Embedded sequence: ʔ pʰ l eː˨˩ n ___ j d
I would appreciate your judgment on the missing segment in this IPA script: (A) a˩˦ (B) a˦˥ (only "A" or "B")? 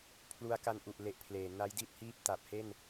B